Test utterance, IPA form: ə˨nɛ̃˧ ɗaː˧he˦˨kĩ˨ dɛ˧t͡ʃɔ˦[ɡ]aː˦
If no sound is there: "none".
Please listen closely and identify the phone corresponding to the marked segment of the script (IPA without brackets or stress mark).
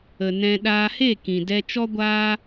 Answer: ɡʷ